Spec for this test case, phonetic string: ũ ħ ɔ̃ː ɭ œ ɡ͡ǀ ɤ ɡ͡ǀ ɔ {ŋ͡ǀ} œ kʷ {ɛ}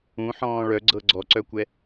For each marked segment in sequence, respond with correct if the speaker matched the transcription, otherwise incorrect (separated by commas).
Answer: incorrect, correct